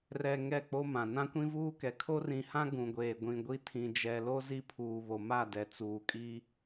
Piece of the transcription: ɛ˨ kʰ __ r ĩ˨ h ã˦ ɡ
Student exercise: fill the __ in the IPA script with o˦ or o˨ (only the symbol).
o˦